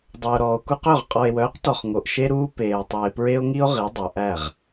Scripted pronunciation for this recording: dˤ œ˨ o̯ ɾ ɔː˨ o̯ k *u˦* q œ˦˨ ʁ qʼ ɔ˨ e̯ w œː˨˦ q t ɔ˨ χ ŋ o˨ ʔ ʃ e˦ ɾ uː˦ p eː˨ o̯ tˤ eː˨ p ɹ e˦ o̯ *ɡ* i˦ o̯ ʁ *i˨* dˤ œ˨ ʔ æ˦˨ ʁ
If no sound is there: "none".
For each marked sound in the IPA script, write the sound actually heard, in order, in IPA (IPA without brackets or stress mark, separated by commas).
u˦, ŋ, i˨˦